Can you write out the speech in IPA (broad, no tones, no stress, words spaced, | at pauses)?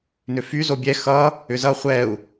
nʏfy zobʲɛ xʌ | ʏzʌ χʷɛu̯